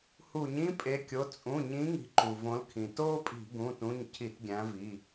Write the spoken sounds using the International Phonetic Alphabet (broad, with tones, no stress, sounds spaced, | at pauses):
h u˧˩˧ ɲ ĩ˥ pʼ e˨˦ kʲ o˩˧˩ t͡sʼ ũ˩˧˩ ɲ ĩ˨˦ ŋ i̤˨˦ ǃ u˩ v õ˨˦ l kʰ ĩ˩ t oː˥ pʼ i̤˧˩˧ ɡ ũ˩˧˩ t ũ˩˧˩ ɲ cʰ i˧˩˧ t ɡʲ æ̃˨˦ v i˩˧˩